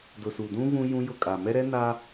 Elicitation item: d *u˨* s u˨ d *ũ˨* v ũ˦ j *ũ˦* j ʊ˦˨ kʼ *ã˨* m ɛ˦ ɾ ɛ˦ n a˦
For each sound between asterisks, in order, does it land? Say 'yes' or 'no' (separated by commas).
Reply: no, no, yes, no